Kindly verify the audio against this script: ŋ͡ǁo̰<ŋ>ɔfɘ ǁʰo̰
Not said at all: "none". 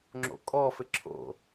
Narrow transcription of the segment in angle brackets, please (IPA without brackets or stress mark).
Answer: kʼ